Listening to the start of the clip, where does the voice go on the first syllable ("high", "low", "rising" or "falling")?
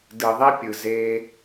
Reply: low